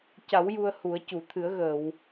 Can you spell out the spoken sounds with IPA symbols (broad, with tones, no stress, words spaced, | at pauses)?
ca˨˩˦w ju˧ə̯hu˨˩˦ə̯ cu˨˩˨t̪ʰɨ˨˩˦ə̯ɣəː˨˩˨w